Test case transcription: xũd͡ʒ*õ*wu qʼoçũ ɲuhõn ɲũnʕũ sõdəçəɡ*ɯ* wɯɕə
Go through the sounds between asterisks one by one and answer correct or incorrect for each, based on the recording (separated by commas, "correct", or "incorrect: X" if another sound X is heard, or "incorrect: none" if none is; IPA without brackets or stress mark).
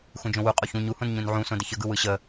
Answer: correct, correct